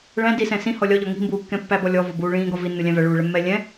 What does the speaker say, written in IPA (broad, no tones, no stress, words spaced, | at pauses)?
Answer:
ɭæ̃ disɛ̃ sĩhɔ lʲɒʎɔ ŋi̤mbuːkːɛ̃ pːæbɔ lʲɔvɔbuː ɭĩːɡɒ vinːulʲæ̃ væɭuːɭɛmːɛː lʲɛ̃